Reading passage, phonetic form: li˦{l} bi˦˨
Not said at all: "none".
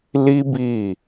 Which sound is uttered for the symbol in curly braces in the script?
none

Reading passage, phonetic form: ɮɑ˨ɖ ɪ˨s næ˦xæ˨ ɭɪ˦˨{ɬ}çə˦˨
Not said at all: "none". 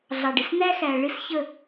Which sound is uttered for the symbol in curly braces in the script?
s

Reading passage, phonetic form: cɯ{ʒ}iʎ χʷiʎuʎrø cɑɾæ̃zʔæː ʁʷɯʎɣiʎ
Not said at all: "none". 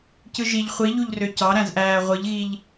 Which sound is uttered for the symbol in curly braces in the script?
ʒ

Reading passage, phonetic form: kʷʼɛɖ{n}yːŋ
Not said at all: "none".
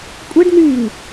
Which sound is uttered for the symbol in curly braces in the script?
n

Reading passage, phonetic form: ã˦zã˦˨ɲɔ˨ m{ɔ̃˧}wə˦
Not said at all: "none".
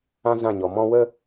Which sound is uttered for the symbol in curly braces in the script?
ɔ̃˧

